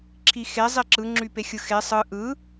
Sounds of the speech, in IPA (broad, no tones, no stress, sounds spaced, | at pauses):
ǁʰ i x e zˤ i ǁ ɯ ŋ͡ǁ y p e xʲ ɯ x e sˤ ɯ ʔ ɯ